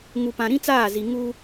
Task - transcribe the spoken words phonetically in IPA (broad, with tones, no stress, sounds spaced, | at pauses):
ŋ u˨ p ã˨ ɾ ĩ˦ t͡s aː˦˨ z i˨ ŋ u˦